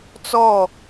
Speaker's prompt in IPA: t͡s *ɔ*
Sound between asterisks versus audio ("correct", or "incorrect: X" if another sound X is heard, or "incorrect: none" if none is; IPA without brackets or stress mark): correct